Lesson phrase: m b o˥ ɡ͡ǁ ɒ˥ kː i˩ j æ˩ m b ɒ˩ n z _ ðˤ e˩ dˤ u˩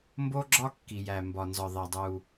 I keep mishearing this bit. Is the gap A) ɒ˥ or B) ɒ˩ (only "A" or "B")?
B